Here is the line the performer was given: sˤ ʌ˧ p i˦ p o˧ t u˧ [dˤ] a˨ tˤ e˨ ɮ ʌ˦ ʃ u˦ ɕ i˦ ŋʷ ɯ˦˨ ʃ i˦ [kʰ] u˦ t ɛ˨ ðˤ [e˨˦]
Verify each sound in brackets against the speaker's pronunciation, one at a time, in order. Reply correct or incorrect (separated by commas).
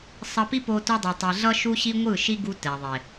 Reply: correct, incorrect, incorrect